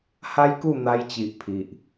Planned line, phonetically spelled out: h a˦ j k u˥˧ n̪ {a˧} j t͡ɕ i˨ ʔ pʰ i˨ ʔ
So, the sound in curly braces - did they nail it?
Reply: yes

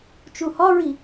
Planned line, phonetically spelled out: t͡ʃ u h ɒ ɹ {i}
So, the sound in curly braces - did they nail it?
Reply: yes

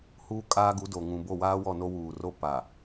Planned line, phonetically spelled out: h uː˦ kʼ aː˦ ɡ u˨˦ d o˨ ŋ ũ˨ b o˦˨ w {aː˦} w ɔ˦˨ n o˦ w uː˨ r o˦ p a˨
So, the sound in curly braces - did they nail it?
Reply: yes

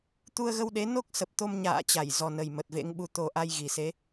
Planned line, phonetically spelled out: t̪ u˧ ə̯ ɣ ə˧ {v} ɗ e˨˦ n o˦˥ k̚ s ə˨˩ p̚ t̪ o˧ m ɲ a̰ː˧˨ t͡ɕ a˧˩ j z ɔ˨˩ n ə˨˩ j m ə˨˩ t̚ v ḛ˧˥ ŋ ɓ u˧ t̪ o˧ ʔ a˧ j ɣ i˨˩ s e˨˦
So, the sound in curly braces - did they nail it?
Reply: no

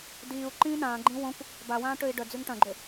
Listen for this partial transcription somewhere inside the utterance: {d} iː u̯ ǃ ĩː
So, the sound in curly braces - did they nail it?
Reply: yes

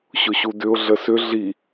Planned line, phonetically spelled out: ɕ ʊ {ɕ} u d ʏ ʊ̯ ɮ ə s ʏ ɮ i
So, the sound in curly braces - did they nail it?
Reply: yes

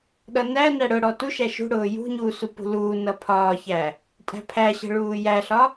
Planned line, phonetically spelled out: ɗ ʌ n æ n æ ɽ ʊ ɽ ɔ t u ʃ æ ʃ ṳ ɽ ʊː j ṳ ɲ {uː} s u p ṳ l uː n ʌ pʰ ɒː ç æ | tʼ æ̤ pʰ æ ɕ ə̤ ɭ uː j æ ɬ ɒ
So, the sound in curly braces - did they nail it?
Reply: yes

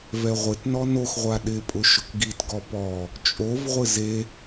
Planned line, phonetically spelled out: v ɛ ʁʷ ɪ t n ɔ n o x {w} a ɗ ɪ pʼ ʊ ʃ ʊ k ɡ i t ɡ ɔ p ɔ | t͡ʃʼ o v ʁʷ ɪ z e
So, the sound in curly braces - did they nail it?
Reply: no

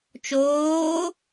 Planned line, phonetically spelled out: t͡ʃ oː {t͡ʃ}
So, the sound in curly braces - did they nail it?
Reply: no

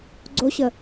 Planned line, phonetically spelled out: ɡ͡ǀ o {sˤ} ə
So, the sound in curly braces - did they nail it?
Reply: no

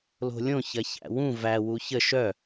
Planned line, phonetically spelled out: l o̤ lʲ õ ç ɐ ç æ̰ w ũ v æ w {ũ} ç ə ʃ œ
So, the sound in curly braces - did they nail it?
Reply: no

